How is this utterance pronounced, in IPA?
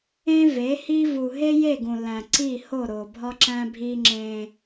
ẽ˦ve˨˦hi˦ vu˨ɦe˦je˦˨ ɡũ˨læ̃˨ ǀi˦˨ho˦˨ɾo˨ bʱɒ˦ǁæ̃˦bʱi˦ ŋ͡ǁẽ˦

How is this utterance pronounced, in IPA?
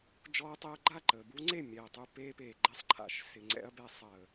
d͡ʒɔː˧ɐ̯tˤe˧ɐ̯ ɡ͡ǃa˦˨ǃəː˨bu˦ŋ͡ǀe˦˨ mʲɛː˨tˤu˧ peː˧peː˨ɡ͡ǃɛ˧sˤ ǃʰa̰˨ʃ sɪ˨ŋ͡ǀɛ̰˧ɐ̯bɛ˧ sˤəː˨

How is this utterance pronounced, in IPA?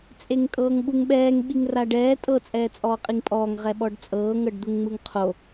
t͡sʼeŋkʼɤːŋɓuŋɓɛːŋ ɓiŋraɖɛː tʼɤ t͡sʼɛːt͡sʼɔːqʼiŋpʼɔːŋ ʁɛɓɔɖt͡sʼɤː ŋɤɖd̪uŋŋ͡mɯŋqʰo

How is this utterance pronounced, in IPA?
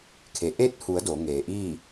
kʰe˩˧ ʔe˧˥t̚hu˩˧ə̯ do˩˧ŋeː˩ ʔiː˥˨

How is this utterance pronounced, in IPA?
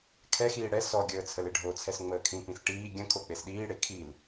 kʰɛxiː ɽɛ sɔɡʲəː t͡sʰəleɖʱot͡sʰɛs ŋ͡məːkʰĩpĩs ʈiː ɡʲə̃ kʰok͡pesɗiːɽe kʰil

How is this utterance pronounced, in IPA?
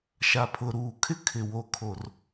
ʃa˨pʰʊ˨ ɾuː˨kʰɪ˦ kʰɪ˨wo˨ kʰo˨r

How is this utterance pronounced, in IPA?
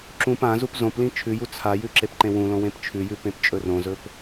ǁũp ã zupzõplĩ t͡ʃʰʉju t͡sʰajʉ ǁepǃẽwũlõ wẽpt͡ʃʰʉjʉ pẽpt͡ʃʼɵrõzɵp

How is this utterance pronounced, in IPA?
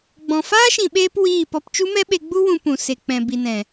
ɡ͡bɔ̃˨ faː˦ʃĩ˨ɓeː˧p wiː˦˨pɔ˧p t͡ʃu˦mɛ˦ɓe˧ɡ͡bu˦ wũ˧pũ˨ se˨k͡pɛ̃˨ bi˨nɛ̃˨

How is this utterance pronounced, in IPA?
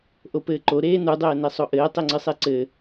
ʔopɘːǃo ɾeːnudˤɘːne sˤoʔɘː tˤeŋ͡ǀɨsˤeǀɘ

